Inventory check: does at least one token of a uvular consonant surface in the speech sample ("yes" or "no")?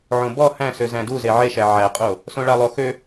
yes